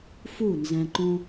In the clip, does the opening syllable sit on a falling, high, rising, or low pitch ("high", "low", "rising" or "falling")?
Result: falling